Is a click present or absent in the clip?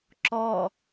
present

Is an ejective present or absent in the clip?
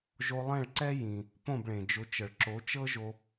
absent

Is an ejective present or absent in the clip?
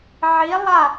absent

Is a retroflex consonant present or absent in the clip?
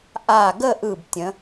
absent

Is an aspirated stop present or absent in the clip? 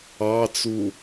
absent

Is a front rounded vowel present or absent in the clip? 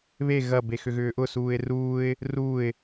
present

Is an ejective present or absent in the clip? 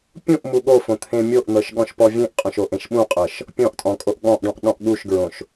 present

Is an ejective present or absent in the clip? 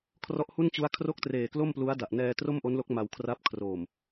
absent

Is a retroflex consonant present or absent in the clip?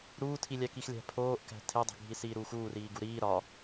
absent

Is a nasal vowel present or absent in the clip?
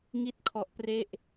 absent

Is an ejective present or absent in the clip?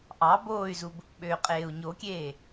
present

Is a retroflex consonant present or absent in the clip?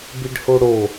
present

